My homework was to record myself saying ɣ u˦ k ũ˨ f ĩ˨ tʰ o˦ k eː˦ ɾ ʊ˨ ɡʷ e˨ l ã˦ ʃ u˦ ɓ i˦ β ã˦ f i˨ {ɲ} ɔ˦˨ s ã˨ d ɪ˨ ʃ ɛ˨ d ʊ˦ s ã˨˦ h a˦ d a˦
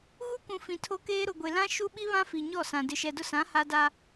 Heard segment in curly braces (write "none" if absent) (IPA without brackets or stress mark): ɲ